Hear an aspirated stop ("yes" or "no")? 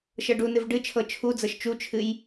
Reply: yes